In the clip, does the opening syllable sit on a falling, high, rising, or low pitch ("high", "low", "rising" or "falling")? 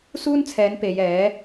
high